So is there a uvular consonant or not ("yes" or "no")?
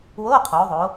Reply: yes